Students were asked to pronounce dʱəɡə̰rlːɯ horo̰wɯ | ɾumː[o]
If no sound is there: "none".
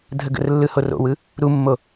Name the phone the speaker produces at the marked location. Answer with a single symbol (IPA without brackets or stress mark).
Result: o